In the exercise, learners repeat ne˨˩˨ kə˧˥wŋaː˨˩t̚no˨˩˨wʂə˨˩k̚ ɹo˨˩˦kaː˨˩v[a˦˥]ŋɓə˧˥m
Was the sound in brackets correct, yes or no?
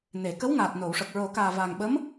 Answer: no